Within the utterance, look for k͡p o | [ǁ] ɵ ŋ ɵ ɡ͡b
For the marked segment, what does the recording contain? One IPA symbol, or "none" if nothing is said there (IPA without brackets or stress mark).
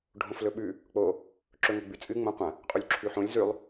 ǁ